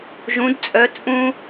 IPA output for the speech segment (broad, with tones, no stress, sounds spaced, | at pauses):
ʒ ũ˧˥ d t͡sʼ œ˧˥ t͡sʼ ũ˥